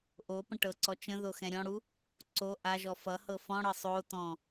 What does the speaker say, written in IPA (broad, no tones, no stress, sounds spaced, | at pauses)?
ʔ o p ə̃ ʈ ɤ ǀ ɔ t͡ʃ ə̃ ð o x ɛ̃ ɾʲ ɔ̃ ɽ u | ǀ o ʔ a ʒ ɔ f ʌ h ɤ f ɔ̃ ɽ ɤ sˤ o t ɔ̃